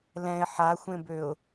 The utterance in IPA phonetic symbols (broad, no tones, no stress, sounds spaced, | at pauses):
l ɛ̃ ɪ̯ ħ a xʷ ẽ b ø ʊ̯